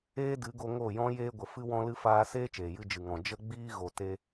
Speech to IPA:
eː˦ d ɨ˨˦ ɡ o˧ ŋ o˦˨ j ɔ̃˦ j eː˧ ɡʷ ə˨ f ɨ˧ w ɔ̃˧ l ɨ˧ f aː˦ s eː˦ t͡ʃ eː˨ j ɨ˧ d͡ʒ ɨ˨ ŋ ɔ̃˨ d͡ʒ ə˧ ɡ͡b iː˧ ɣ o˨ t e˧

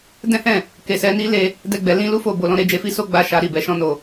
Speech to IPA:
d ɛ̃˦ h ɛ̃˦˨ | k e˧ s ɛ˦ n i˦ l e˧ | d ɛ˦ ɡ͡b ɛ˧ l ĩ˦ l u˦ f o˦˨ b o˧ l ɔ̃˧ ɾ e˧ d͡ʒ e˧ f i˦ s o˦ ɡ͡b a˧ ʃ a˧ ɾ i˨ b ɛ˧ ʃ ɔ̃˧ n o˨

